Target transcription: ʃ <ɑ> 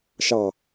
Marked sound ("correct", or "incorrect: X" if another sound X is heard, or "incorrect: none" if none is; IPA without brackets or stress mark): correct